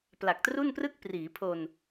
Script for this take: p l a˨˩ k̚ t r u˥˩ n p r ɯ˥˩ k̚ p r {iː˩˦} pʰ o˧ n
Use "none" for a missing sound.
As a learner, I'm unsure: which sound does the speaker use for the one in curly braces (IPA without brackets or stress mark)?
iː˩˦